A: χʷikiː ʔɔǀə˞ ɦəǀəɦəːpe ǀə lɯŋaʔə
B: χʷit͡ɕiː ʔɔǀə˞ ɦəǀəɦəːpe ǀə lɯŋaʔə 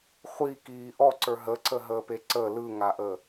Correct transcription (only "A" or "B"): A